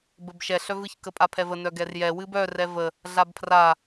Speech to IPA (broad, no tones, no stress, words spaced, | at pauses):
bəbʃɛ ɬœvɨç kəpʼapʰɛvə nœɡɛrjɛ wɨbœ rɛvə | ɮabpʰra